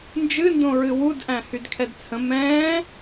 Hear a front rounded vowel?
yes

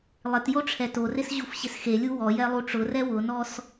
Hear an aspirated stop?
yes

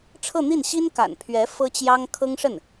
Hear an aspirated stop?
yes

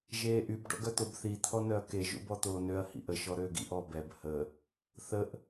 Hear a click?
no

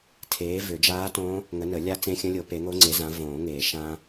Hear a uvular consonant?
no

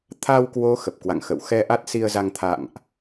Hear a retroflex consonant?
no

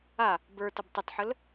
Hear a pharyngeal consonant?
yes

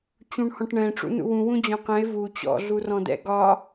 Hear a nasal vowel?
yes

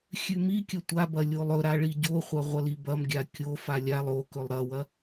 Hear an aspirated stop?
no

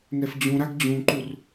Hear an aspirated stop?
no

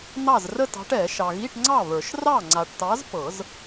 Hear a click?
yes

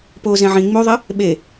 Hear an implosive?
yes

